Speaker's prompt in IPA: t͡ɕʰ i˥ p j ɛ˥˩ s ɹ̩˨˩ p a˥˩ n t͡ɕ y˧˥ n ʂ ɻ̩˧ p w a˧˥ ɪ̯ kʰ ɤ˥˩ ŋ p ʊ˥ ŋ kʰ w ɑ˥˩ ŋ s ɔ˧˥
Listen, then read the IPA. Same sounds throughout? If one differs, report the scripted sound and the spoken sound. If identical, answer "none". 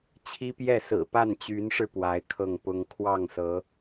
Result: ɔ˧˥ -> ɤ˧˥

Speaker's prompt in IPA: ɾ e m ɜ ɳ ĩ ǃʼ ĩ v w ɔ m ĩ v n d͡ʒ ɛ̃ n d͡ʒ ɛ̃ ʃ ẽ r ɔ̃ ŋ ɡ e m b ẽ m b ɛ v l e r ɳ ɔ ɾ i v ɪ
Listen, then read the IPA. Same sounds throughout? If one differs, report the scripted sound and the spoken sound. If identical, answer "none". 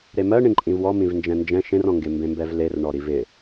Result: none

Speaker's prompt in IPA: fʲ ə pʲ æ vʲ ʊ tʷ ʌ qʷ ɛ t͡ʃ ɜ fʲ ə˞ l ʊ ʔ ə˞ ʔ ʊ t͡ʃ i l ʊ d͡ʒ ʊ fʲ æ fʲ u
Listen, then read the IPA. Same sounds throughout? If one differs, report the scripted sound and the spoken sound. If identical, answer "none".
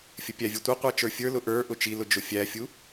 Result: ɜ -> ə˞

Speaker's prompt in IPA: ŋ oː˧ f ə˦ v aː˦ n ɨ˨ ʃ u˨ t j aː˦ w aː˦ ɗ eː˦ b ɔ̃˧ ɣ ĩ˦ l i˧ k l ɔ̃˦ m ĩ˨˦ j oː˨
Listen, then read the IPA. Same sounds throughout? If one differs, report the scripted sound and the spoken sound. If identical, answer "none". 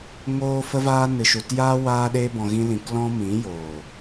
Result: i˧ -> ĩ˧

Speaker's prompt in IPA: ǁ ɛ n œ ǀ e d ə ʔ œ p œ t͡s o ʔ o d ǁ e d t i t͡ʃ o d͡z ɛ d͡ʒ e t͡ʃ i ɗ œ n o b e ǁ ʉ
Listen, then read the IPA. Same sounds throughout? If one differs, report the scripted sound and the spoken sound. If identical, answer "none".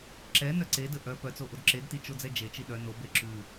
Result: none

